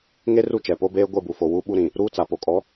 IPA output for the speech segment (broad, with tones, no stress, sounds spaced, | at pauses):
ŋ e˦ r u˦˨ t͡ʃ ɛ˨ p o˦ b eː˦ ɡʷ e˦˨ b u˨ f o˨ w u˦ ɓ u˦ ɾ ĩ˨ | ɾ uː˦ t͡s a˨ p o˨ kʼ ɔ˨˦